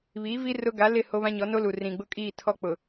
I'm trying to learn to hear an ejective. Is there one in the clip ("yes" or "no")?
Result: yes